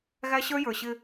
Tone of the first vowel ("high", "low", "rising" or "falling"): high